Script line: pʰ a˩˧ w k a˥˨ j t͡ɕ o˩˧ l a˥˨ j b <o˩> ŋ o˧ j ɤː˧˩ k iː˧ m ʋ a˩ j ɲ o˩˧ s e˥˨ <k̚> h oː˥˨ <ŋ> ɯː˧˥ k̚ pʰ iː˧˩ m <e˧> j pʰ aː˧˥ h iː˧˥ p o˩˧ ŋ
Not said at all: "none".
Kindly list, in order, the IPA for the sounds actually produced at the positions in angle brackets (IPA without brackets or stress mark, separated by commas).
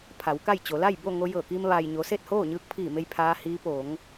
o˥˨, t̚, ɲ, e˧